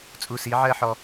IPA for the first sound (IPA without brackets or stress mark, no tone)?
t͡sʼ